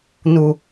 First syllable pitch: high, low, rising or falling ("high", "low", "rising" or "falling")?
low